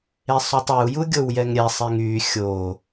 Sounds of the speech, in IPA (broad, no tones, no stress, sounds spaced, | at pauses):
e sˤ u tˤ e u̯ j u ɡʲ o w j ɛ ŋ ɾʲ ɛ sˤ e ŋ y xʲ o